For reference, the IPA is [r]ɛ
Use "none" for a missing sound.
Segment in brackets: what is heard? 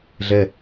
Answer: ɮ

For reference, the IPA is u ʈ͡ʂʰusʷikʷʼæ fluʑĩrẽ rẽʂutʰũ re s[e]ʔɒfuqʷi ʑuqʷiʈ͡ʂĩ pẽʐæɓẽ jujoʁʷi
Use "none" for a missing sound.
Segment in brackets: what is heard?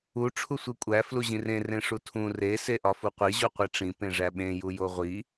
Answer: e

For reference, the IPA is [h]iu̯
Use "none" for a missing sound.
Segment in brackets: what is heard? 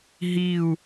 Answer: ɦ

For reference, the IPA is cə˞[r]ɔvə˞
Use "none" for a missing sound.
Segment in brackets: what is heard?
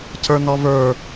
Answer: n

